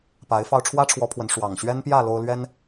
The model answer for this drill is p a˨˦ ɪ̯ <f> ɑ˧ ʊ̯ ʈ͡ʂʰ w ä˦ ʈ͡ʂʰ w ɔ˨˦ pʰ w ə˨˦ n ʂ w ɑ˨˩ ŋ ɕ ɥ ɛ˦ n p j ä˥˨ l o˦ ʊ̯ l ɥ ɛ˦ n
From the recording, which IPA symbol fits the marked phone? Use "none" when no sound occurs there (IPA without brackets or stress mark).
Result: f